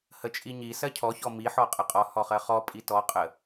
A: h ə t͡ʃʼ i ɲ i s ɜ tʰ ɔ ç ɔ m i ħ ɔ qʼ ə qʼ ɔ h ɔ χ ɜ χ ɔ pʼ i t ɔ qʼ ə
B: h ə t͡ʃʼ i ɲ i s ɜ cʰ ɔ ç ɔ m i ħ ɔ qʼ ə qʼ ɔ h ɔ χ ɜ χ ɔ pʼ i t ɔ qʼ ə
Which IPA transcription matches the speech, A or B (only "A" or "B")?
B